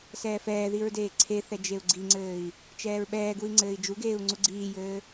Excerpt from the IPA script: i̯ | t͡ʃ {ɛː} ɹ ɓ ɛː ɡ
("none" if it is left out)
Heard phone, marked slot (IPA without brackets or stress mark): ɛː